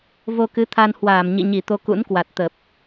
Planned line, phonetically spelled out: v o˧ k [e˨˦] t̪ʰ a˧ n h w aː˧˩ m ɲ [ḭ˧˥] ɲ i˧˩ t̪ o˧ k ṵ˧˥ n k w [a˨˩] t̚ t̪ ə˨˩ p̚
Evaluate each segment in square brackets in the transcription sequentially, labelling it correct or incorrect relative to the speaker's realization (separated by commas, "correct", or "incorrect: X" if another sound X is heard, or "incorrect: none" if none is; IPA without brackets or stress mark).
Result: incorrect: ɨ˨˦, incorrect: ḭ˧˨, correct